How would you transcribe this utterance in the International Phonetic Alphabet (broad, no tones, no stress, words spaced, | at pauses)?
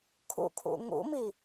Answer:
kʰṵkʰṵ ŋṵmi